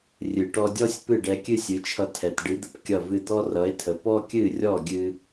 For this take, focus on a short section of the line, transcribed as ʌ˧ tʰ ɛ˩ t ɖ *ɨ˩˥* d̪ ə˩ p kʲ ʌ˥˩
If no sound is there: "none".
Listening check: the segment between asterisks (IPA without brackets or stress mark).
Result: ɨ˩˥